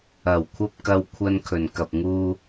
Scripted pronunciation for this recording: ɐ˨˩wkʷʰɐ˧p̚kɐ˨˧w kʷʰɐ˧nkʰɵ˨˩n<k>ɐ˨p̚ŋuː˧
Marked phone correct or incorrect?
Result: correct